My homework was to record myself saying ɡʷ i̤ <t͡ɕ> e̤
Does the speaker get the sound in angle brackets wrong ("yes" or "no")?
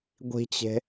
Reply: no